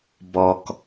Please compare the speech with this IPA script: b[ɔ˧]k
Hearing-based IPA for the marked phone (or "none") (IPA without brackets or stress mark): ɔ˧